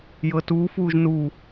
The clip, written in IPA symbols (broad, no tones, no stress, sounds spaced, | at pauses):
j ɤ t uː f uː ʒ n u